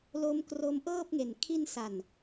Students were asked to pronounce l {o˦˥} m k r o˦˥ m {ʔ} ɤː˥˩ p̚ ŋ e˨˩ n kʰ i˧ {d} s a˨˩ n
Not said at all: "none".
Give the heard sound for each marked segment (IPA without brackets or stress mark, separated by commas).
o˦˥, ʔ, n